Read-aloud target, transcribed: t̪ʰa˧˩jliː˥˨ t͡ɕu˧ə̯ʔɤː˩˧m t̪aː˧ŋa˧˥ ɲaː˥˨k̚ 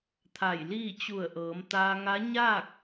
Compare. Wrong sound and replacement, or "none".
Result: u˧ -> u˧˩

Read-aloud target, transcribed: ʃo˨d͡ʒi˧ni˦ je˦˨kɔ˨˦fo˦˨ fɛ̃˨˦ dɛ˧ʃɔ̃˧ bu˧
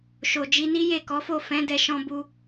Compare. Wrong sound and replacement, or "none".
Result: none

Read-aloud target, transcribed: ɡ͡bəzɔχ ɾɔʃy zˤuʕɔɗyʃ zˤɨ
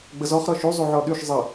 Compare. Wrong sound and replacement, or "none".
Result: ɨ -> ə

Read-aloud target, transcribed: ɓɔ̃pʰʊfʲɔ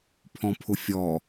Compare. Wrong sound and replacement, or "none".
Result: ɓ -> pʰ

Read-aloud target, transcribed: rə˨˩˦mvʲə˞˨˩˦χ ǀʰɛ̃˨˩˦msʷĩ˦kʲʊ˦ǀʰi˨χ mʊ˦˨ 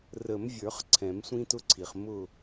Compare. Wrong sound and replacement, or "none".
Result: kʲ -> t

